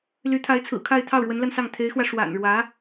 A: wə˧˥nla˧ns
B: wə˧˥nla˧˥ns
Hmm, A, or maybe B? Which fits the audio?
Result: A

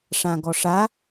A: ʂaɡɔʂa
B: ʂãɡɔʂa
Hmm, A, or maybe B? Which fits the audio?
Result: B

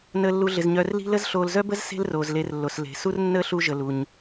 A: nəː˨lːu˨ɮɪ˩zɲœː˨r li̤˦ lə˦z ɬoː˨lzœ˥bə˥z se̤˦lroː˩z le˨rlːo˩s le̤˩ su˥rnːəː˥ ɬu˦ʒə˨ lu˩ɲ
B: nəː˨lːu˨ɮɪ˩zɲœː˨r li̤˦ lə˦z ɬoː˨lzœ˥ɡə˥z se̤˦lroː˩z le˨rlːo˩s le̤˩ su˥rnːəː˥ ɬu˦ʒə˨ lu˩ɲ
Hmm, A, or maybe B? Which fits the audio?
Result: A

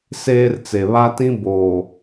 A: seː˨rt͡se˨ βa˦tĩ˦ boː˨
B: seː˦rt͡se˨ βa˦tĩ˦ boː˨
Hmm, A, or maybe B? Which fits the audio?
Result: B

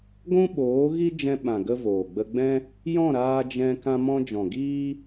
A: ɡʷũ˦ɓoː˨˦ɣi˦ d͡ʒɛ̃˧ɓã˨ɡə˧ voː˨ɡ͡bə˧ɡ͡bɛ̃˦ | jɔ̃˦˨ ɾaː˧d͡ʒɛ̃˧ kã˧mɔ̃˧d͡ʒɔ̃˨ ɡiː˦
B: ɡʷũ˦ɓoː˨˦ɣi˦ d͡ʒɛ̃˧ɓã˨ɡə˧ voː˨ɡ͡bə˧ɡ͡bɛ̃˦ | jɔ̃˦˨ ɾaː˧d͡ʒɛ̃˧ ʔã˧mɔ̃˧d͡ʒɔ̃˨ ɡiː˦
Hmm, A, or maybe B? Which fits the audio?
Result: A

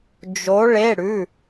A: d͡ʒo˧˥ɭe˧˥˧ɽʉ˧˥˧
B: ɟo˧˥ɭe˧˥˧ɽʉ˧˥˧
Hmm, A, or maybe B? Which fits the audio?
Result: A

